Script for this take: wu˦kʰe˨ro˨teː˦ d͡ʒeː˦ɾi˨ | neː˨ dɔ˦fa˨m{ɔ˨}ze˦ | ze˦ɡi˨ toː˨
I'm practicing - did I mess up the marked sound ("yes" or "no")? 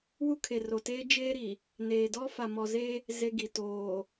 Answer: no